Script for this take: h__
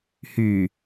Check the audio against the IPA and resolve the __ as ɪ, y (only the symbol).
y